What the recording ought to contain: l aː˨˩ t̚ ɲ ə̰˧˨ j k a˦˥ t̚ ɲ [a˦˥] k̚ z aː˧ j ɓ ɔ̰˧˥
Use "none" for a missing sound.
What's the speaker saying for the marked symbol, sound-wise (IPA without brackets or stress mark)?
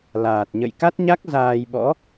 a˦˥